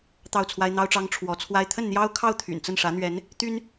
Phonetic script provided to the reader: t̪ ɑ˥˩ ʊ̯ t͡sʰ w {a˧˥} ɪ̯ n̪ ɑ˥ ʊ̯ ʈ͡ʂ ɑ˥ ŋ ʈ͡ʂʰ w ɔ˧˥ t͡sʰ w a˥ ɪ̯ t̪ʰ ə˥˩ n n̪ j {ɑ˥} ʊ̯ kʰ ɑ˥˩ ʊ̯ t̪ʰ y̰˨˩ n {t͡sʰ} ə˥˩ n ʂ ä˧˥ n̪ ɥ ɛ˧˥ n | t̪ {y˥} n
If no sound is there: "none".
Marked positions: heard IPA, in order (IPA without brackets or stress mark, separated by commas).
a˥, ɑ˥, t͡s, y˥